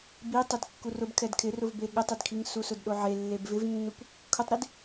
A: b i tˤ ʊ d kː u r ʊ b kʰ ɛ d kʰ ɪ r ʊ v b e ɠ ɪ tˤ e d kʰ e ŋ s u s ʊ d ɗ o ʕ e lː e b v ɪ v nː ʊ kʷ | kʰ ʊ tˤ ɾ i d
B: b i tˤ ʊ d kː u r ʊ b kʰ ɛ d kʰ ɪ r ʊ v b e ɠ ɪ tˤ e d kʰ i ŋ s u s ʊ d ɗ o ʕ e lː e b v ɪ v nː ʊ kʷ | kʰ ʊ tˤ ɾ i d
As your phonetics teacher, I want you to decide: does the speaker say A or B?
B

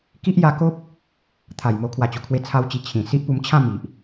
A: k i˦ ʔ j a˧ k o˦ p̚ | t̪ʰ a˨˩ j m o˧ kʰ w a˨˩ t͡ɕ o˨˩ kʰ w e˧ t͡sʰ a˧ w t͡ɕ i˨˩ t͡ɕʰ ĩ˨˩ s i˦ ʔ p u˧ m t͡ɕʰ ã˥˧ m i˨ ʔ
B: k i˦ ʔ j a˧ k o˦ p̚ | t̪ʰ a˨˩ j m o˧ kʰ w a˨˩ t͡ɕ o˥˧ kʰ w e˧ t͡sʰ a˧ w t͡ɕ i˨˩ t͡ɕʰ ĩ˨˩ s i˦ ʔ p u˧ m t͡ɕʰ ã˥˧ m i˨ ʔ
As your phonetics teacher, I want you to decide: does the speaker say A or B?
A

